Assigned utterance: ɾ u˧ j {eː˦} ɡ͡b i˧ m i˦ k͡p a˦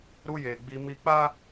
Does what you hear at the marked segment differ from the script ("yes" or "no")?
yes